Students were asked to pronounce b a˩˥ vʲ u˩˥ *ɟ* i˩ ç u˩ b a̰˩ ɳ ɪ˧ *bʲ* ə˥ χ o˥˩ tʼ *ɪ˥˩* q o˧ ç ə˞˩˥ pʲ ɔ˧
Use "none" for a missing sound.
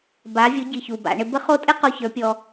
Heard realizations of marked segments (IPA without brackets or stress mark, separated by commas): ɟ, b, ɪ˥